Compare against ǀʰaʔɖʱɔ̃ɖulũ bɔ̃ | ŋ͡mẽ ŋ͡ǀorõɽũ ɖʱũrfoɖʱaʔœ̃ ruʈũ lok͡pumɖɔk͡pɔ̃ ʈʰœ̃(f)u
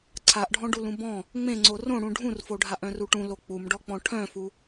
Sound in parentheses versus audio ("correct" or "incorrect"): correct